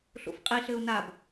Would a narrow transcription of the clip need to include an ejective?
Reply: yes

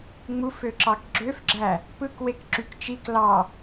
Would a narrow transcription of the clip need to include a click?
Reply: yes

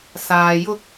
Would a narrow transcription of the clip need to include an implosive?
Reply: no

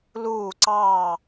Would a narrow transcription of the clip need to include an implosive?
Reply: no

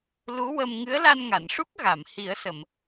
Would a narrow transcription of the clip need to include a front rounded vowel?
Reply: no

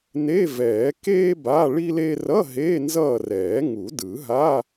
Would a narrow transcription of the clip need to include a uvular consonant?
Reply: no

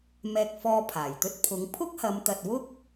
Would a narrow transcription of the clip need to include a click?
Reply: no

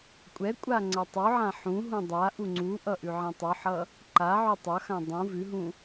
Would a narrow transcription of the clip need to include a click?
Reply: yes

